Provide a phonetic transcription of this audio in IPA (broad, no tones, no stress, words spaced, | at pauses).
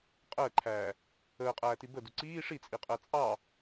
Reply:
qʼəːǃʰæː | əːqʼæːti bədu ǀiː ʂit͡sʼiqʼɜ t͡sʼɑ